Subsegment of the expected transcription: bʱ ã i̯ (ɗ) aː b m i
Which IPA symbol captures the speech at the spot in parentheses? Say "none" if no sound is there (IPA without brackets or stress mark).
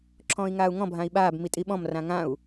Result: ɓ